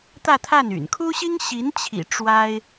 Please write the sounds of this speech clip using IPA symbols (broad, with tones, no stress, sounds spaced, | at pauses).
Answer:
t̪ ä˥˧ t̪ʰ a˥˩ n y̰˨˩ n kʰ u˥ ɕ i˥ ŋ ɕ i˧˥ n t͡ɕʰ ḭ˨˩ ʈ͡ʂ w a˥ ɪ̯